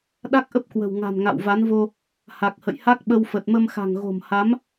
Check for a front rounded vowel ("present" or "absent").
absent